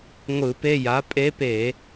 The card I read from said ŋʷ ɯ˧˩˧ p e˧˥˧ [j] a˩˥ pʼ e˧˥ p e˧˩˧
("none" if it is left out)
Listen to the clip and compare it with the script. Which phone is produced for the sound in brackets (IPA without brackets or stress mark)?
j